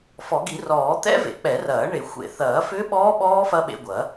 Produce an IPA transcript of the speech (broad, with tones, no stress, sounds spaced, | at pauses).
f ɔ˨˩˦ ɡ i˨˩˦ r ɔː˨˩˦ t̪ ɛ̰˦˥ v ḛ˨˩˦ k͡p ɛ˨˩˦ r ɐː˨˩˦ ɳ e˨˩˦ xʷ ḛ˨˩˦ θ ɐː˨˩˦ f ʏː˦˥ ɓ ɔː˦˥ ɓ ɔː˦˥ f ɐ˦˥ ɓ ḛ˧ ɡʷ ɐ˨˩˦